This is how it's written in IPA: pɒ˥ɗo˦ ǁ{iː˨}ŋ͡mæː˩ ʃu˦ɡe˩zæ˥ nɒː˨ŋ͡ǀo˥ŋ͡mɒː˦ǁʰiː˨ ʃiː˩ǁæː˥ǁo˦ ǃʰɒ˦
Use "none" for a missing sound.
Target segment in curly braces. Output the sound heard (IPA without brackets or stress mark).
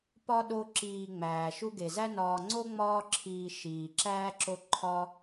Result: iː˨